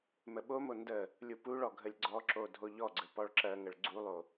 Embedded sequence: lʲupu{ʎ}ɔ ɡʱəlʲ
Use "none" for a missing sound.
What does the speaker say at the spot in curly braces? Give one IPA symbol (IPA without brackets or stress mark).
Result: ɭ